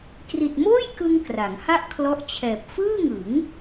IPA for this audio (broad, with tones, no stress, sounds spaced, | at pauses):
k r i˨˩ t̚ m oː˥˩ j k ɯ˧ ŋ k r a˩˦ ŋ h a˥˩ ʔ kʰ l ɔ˦˥ ʔ t͡ɕʰ ɛː˨˩ p̚ f ɯː˥˩ ŋ ɯ˩˦ ŋ